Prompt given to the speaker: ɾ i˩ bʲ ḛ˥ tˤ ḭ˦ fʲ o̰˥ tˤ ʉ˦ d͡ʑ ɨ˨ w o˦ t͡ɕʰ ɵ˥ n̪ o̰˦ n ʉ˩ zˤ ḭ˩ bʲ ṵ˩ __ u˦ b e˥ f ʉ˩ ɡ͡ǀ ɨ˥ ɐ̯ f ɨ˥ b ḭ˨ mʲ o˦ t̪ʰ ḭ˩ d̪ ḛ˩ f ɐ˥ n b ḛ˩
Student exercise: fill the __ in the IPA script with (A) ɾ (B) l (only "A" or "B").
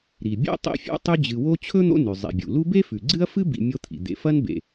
B